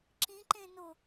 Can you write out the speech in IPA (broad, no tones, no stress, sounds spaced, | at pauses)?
ǁ ĩ ǃ ẽ n o